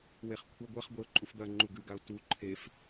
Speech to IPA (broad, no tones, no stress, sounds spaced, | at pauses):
w e χ kʷʰ ɐ ɡʷ ɐ χ ɡʷ e ʊ̯ ǃʼ u f d̪ ɐ ŋ͡ǃ u ɡ ʉ ɡ a ʊ̯ t u ǃʰ e f